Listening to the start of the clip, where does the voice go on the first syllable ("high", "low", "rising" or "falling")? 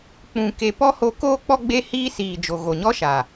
low